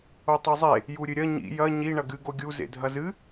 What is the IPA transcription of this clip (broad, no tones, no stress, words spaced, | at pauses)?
otˤuzˤe | juɾʲɨɾʲɐ ɲḭ jɐ ɲi ɳɐɡɨ ɡoɡʲu zḛdʱɐzɨ